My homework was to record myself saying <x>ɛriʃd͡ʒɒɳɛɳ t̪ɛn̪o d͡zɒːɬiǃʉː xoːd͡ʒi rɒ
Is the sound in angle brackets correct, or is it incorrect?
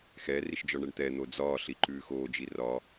correct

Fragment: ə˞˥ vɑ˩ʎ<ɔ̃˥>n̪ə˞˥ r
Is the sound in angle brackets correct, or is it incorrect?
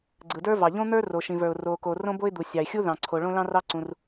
incorrect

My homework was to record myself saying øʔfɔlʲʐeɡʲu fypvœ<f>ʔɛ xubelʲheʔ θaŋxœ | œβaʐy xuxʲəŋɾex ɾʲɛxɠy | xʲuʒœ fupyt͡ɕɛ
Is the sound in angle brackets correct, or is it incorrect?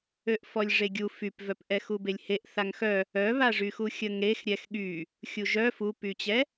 incorrect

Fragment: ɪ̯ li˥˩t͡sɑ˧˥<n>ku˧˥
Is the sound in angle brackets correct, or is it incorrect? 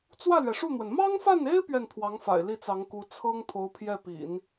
incorrect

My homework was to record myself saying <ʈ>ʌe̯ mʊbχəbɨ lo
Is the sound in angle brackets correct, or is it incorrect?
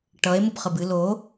correct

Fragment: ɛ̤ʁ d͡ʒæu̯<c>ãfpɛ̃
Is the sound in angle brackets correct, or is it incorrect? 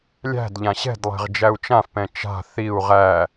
incorrect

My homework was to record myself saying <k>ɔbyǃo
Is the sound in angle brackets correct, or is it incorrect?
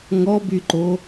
incorrect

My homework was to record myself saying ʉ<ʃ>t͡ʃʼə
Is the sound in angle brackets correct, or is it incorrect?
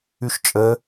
correct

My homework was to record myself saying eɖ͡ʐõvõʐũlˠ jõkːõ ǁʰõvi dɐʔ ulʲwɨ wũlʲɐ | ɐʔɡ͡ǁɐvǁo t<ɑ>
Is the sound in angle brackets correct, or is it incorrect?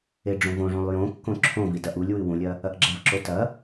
incorrect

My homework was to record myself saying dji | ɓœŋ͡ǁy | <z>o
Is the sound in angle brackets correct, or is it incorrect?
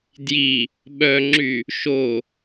incorrect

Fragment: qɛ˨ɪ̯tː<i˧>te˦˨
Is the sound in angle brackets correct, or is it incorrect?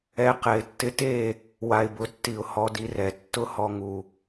incorrect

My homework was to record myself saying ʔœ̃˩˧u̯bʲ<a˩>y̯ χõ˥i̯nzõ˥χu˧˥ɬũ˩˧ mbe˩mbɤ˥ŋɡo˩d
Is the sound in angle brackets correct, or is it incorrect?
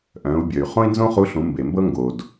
incorrect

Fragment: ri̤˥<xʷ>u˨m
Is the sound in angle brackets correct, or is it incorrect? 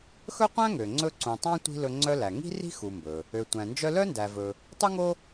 incorrect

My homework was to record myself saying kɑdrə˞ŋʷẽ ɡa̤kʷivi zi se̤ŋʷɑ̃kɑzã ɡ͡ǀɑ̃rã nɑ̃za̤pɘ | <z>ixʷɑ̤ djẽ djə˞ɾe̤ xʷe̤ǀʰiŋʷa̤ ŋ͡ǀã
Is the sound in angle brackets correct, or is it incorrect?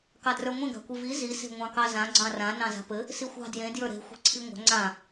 incorrect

